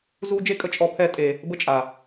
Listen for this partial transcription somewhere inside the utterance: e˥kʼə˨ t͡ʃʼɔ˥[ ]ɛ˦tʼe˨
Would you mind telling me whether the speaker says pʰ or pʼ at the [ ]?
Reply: pʰ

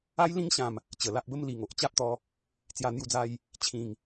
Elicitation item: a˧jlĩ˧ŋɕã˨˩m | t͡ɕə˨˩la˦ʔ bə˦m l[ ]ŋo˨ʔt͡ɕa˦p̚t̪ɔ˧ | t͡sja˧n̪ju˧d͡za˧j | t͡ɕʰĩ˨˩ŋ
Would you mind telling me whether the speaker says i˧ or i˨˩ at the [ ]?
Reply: i˨˩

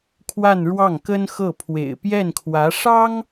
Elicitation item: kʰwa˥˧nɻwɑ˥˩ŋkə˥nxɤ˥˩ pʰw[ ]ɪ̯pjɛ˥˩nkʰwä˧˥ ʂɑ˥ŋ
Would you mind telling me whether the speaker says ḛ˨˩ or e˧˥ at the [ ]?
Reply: ḛ˨˩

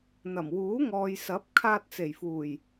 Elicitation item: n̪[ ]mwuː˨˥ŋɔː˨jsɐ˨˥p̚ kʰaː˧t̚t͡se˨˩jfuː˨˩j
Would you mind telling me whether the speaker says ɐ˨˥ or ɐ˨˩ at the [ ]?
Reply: ɐ˨˩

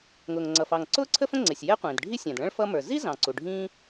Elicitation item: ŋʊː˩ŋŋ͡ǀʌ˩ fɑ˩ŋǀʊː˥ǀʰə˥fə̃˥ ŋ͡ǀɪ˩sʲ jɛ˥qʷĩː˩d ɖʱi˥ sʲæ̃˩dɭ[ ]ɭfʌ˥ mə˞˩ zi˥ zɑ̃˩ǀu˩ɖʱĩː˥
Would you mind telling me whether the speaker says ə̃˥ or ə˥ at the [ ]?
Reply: ə̃˥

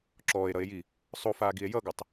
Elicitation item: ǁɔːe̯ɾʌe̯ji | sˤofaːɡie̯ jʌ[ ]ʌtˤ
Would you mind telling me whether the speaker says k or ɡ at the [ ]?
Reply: ɡ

